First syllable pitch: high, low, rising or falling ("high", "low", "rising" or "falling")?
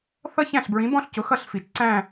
falling